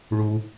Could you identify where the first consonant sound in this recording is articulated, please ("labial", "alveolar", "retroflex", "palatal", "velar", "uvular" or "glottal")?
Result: retroflex